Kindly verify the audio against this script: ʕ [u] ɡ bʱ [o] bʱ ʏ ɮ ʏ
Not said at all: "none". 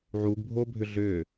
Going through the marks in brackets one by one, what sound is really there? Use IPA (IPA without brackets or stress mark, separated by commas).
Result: u, o